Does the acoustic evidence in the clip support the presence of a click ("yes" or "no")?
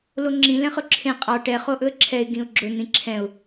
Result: yes